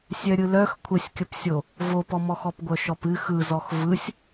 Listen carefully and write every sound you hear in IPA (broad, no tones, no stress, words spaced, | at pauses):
sʲœɾʲɯlœx kʷʰəsʲkʲəpsʲo | vopɔmɔx ɔpɡʷœʃɔpɨ xɯzɔx vɯsʲ